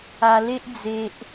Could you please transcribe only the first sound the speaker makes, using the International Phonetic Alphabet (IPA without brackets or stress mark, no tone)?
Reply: a